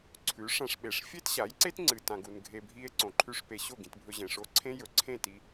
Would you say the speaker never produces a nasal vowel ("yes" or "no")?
no